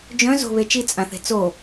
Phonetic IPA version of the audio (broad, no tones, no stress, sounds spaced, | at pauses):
d͡ʒ œ̃ z o̤ β e t͡ʃ i t͡sʼ ã θ e̤ t͡s o